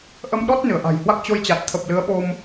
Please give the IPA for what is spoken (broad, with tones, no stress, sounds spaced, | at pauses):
ʔ ə˧ m ɗ ɔ˦˥ t̚ n ɨ˧˩ ə̯ ʔ a̤˨˩ j h w a˦˥ k̚ t͡ɕ o˧ j t͡ɕ a˨˩ t̚ t̪ʰ ə˨˩ p̚ l ɨ˨˦ ə̯ ɓ o˧ m